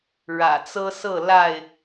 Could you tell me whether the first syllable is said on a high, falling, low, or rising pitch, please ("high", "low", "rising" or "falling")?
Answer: low